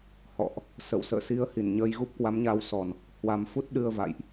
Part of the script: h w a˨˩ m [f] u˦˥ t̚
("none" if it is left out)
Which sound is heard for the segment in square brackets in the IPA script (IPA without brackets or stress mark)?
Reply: f